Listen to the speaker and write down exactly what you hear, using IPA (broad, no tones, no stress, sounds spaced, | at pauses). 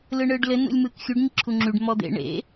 l ɯ ɳ ɯː ɖ l ɘ n ṵ lʲ m ɯː k xʲ u ɖ ɲ i ǁʰ u ŋ͡ǁ y ɖ m ɔ d̪ ḛ ɳ ḛ